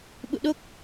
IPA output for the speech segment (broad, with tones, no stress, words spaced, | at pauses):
ɓṵ˧˨ɗo˦˥k̚